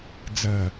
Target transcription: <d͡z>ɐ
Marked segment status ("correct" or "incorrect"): correct